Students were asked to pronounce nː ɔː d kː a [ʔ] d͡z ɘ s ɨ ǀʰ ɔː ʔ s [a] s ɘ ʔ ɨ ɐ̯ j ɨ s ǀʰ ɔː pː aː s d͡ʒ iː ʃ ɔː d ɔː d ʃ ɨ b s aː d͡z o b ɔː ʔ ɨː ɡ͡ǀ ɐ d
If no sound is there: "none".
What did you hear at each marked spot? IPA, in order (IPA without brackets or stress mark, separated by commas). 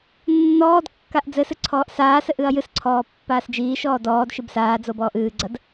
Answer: ʔ, aː